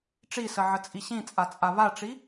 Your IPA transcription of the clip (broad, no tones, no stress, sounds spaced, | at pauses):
ʈ͡ʂ i s ə ʕ ə t͡sʼ i ɕ ĩ t͡sʼ a t͡sʼ a β a ʈ͡ʂ i